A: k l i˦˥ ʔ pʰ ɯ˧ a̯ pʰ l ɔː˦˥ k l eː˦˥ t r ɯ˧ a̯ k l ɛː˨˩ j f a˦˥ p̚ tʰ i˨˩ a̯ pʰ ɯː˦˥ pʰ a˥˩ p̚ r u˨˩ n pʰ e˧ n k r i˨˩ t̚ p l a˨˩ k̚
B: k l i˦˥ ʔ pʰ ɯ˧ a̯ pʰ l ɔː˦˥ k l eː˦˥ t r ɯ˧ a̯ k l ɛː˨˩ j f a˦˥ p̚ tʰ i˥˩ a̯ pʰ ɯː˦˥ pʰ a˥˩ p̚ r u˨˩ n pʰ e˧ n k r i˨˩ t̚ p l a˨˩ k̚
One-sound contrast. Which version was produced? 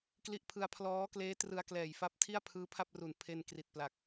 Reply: B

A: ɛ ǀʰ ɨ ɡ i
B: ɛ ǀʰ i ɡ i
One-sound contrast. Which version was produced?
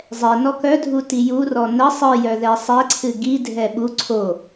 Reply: A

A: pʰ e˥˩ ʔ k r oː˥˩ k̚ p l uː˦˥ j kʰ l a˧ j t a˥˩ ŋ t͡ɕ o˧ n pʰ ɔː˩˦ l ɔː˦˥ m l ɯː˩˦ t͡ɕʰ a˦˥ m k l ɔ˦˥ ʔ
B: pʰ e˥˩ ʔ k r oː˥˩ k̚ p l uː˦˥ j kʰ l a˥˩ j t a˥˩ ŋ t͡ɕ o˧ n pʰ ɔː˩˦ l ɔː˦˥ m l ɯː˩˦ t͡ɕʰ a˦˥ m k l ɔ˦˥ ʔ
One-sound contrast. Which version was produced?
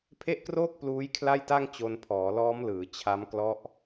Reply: B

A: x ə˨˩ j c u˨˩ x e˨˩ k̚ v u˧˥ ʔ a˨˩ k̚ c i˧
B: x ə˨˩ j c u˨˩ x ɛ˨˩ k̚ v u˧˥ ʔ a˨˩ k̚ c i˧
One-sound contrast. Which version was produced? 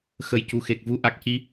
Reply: A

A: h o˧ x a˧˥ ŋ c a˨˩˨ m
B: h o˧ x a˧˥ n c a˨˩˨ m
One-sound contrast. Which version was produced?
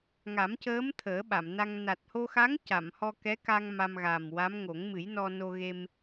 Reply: A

